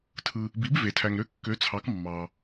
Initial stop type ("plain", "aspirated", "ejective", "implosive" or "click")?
aspirated